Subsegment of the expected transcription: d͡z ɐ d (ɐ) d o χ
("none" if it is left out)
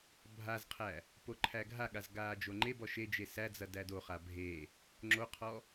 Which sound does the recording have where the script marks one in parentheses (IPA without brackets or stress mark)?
æ